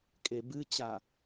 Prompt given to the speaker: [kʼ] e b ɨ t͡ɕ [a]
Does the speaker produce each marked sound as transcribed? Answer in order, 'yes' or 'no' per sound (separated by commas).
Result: yes, yes